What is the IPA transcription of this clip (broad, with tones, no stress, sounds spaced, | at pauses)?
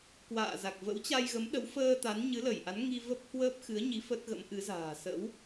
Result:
k w a̰ː˧˨ z a˨˩ k̚ v ə̰˧˥ w t͡ɕ a˧ j ɣ ə˨˦ m ɗ ə˨˦ w f əː˧ t̪ a˨˦ n ɲ ɨ˨˦ l ə˧˩ j ʔ a˨˦ n ŋ i˧ v ə˦˥ p̚ h w əː˦˥ p̚ x ɨ˨˦ ə̯ ɲ i˨˦ f ə˦˥ t̚ ɣ ə̰˧˥ m ʔ ɨ˨˦ z a̤ː˨˩ s ə̰˧˥ w